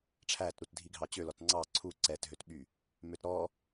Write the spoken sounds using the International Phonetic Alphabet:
ʈ͡ʂʰ æ t ɾ u t dʱ i ɡʱ ɑ t͡ɕ ø l ɔ t ŋ͡ǀ ɑ ǀʰ u ǀ ɛ t ɦ ø t ɓ y | m ø t ɾ ɔ

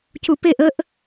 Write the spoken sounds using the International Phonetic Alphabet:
c u p e ʔ ə ʔ

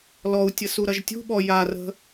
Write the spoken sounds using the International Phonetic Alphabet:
l ɔ u̯ tʲ ə s u ɾ ɐ ʒ tʲ ṳ ɓ ɔ j a r ə̤

